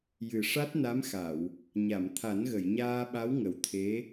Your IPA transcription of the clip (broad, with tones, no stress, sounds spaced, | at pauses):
j ɨ˨˩ ʂ a˦˥ t̚ n a˧˥ m x a˨˩˨ w | ɲ a˨˩˨ m t̪ʰ a˨˩˦ n ɣ ə˨˩˨ j ɲ aː˧ ɓ a˧˥ w ŋ ə˨˩ w t̪ʰ e˧˥